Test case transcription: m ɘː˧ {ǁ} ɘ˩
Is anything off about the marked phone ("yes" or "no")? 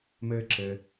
no